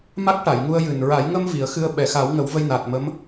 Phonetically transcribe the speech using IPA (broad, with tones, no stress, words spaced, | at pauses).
ma˦˥k̚ʈa˨˩˨jŋu˧ə̯jɨ˨˩n ɹa˨˩˦jŋə˧m vi˨˩˦ə̯xɨ˧ə̯ ɓɛ˨˩xa˨˩˦wŋə˨˩˦w və˧jnaː˨˩t̚mə˧˥m